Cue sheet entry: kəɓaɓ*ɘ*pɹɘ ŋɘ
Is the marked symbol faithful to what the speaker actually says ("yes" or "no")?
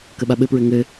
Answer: yes